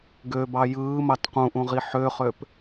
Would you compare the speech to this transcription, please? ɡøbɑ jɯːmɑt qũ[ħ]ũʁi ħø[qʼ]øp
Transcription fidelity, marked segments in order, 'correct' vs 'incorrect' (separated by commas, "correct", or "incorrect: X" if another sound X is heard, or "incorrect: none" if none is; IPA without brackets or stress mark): incorrect: ʔ, incorrect: χ